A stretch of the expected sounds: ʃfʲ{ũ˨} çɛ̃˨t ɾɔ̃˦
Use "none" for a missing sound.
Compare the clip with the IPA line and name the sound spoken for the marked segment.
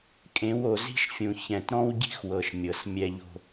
ũ˨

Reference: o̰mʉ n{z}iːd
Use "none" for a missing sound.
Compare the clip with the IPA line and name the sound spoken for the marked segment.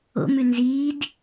z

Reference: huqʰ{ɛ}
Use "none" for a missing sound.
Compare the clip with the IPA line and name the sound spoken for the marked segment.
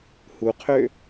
ø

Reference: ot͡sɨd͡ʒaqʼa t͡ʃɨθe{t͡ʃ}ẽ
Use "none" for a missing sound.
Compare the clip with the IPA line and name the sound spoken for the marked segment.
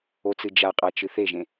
ʒ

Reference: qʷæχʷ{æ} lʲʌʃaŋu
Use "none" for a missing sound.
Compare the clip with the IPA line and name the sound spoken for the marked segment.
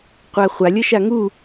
a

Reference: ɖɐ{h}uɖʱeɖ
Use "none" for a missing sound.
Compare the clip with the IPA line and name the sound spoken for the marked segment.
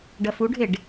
f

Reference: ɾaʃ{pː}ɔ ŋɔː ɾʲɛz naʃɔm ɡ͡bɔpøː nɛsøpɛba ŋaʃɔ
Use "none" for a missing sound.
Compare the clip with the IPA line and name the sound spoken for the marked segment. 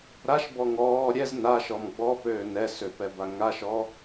b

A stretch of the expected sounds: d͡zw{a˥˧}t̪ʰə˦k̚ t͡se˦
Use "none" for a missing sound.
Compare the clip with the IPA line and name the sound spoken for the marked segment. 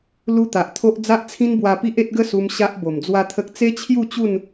a˦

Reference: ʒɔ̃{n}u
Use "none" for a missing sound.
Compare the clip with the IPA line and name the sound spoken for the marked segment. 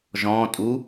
tʼ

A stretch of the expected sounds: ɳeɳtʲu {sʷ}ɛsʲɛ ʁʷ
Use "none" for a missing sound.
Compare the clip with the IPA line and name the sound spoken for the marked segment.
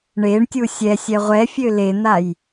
sʲ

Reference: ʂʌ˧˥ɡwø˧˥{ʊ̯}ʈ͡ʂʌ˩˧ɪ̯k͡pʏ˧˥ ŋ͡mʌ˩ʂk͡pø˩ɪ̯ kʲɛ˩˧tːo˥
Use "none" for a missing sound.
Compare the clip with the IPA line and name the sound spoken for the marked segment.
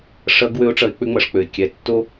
ʊ̯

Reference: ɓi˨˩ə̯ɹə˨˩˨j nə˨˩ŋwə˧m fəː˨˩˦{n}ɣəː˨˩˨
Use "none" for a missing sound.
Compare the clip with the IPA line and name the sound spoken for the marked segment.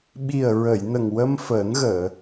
n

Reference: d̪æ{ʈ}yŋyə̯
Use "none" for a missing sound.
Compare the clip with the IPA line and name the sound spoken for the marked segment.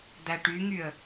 ʈ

